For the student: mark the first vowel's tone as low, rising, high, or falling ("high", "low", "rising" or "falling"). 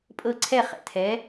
falling